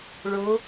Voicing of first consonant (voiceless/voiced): voiced